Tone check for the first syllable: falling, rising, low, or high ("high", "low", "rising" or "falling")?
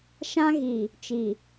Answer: high